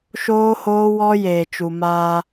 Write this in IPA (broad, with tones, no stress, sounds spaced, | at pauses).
ʃ oː˦ h oː˦ w ɔ˦ j eː˨ t͡ʃ u˨ m aː˦